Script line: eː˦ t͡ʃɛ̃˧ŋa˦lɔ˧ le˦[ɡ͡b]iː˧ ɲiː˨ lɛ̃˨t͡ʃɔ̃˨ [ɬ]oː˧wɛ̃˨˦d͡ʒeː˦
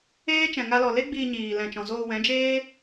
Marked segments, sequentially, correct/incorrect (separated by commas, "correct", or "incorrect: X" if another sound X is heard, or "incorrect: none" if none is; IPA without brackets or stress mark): correct, incorrect: z